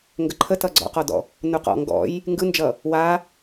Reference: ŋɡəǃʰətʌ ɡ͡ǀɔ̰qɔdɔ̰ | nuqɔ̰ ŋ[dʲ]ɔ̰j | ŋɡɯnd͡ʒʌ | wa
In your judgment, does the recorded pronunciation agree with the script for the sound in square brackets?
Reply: no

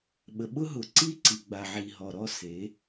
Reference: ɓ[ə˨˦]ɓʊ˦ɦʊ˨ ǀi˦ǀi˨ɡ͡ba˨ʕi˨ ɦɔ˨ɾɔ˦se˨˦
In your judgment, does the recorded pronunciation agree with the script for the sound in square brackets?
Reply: no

